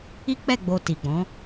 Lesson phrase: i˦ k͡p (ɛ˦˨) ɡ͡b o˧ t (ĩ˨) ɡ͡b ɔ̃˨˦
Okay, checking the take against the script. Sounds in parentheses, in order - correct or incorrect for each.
correct, incorrect: i˨

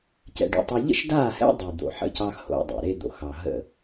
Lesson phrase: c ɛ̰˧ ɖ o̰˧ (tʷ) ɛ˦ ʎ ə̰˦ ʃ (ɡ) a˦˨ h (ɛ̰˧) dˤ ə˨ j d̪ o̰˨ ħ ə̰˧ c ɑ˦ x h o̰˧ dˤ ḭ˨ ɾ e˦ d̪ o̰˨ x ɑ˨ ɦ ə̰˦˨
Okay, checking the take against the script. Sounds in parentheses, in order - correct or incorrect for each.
incorrect: tˤ, incorrect: d, incorrect: ɛ̰˦

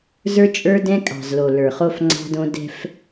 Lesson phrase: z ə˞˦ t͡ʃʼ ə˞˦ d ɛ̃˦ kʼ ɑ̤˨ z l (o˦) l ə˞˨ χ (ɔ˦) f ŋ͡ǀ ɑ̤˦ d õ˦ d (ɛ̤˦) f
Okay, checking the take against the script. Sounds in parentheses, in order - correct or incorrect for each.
incorrect: o˨, incorrect: o˦, correct

